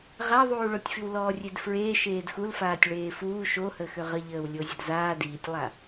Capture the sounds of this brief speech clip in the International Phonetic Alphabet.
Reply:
ʁ a ðˤ uː ɭ o tʲ f y w l ɔː rʲ e d f ɹ eː ʃ eː d x u l f aː tʲ ɭ eː f uː ʃ o h əː x ø ʁ ə ʎ əː w lʲ o zʲ ə d z aː d iː tʲ lˠ a

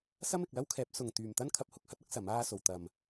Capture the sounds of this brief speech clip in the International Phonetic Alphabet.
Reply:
s ɐ˥ m ɪ˨ k̚ l ɐ˥ w kʰ ɛː˨˥ p̚ s ʊ˨ ŋ t̪ yː˨ m t̪ ɐ˥ n kʰ ɐ˧ p̚ h ʊ˨˥ k̚ h ɐ˨˥ t̚ ɐ˥ k̚ s ɐ˨˥ m aː˥ s o˨ w t̪ ɐ˨ m

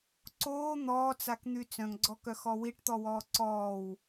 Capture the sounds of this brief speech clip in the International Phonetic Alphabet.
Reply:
ǀ oː n̪ ɔː t͡s a k n̪ y t͡s œ̃ ŋ ɡ͡ǀ ɔ k œ x ɔ w i ʈ t̪ ɔ w ɔː ǀ ɔː w

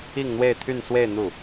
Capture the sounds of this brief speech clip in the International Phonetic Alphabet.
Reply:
i˥˧ ŋ n̪ w e˥˧ ɪ̯ t̪ʰ y˥˧ n s w e˥˧ ɪ̯ n̪ u˥˩

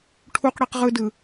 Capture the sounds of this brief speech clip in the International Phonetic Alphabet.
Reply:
ʈʰ u q ɽ i q ʁ ɯ d ɯ

